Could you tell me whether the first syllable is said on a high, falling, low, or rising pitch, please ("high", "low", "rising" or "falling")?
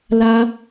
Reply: high